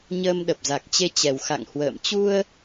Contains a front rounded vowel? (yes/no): no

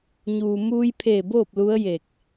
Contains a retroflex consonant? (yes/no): no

